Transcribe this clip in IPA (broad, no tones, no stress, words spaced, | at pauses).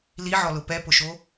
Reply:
liʕɔlʊ pɛpʊʃo